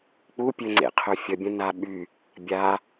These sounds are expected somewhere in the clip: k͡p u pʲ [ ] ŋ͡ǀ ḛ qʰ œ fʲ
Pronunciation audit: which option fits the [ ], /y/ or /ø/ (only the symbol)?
ø